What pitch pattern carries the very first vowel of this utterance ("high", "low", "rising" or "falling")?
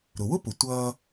low